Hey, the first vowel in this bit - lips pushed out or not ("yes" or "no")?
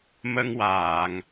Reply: no